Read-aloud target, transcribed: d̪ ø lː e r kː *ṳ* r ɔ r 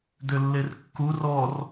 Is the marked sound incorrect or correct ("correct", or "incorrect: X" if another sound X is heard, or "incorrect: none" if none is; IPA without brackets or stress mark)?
incorrect: u